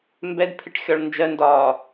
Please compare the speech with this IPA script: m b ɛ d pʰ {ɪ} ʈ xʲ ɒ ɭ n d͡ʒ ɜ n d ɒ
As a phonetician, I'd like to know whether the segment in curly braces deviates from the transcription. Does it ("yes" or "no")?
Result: no